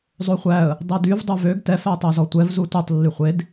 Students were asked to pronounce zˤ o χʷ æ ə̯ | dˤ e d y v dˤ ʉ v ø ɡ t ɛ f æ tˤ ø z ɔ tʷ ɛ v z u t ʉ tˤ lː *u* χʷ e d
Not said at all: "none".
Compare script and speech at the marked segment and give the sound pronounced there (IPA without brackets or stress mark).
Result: y